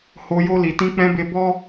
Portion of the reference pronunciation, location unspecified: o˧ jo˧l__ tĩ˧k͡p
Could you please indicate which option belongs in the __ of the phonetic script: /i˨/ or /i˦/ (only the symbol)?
i˨